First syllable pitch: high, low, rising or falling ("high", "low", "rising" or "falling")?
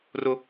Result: high